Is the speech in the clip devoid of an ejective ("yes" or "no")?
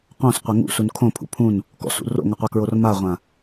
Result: yes